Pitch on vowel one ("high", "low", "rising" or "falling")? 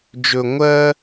low